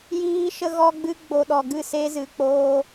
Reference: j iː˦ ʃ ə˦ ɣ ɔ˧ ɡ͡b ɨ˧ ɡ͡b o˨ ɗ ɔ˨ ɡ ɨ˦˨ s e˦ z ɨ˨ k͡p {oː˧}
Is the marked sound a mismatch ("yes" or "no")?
no